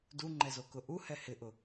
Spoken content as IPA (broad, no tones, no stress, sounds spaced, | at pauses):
d u ŋ͡ǃ ɛ z o k ʊ ʔ u h ɛ h ɪ ʔ ʊ